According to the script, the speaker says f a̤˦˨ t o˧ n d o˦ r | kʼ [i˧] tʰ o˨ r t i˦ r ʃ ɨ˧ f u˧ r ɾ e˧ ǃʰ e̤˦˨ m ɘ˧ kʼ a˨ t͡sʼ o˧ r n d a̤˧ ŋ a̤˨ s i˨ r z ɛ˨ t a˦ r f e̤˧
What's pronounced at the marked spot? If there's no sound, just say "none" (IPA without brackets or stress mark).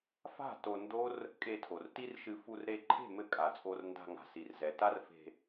e˧